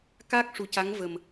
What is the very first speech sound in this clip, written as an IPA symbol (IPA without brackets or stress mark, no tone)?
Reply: k